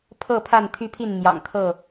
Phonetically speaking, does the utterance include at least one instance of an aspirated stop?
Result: yes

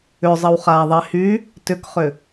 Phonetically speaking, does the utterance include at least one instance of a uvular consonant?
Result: yes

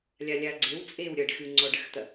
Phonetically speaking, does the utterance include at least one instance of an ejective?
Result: yes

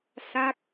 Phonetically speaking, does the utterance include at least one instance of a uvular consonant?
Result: no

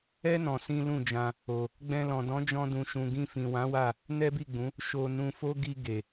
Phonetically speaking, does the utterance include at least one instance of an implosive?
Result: no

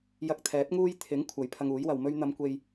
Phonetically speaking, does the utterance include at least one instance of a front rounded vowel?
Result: no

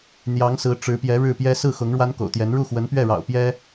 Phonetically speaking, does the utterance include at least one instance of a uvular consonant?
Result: no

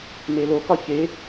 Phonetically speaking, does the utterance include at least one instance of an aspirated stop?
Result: no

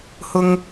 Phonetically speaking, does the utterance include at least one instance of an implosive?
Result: no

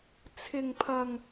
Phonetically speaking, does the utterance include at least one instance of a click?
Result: no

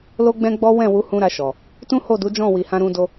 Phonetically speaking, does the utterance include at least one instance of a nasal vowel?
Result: yes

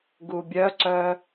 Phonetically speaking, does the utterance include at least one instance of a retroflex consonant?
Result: no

